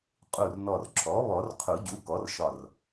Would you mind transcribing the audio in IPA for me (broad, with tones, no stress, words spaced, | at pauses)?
qʼu˧˩rnɔ˧˩r ǁʰɔ˩˥βɔ˨˩˦r qʰu˨˩˦ɟu˩˥ kɔ˩˥rʃɒ˧˩r